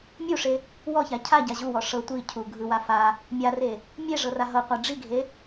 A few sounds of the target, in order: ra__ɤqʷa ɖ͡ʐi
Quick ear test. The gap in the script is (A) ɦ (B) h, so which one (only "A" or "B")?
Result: A